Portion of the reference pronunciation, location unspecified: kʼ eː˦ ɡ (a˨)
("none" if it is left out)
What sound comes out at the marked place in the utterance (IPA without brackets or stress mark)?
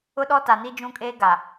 a˨